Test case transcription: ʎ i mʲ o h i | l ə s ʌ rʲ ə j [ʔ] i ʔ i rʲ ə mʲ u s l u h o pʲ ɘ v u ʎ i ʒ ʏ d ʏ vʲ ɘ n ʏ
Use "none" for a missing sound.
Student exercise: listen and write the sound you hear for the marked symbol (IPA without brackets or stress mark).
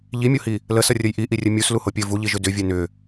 ʔ